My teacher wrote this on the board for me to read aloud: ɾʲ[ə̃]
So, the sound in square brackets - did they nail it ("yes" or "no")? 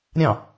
no